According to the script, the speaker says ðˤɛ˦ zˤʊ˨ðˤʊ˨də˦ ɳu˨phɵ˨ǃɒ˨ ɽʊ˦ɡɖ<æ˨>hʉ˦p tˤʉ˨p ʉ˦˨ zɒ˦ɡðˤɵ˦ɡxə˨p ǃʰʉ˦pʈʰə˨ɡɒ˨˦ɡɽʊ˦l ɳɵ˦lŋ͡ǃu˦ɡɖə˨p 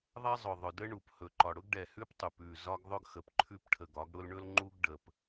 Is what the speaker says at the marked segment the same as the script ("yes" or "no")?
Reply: no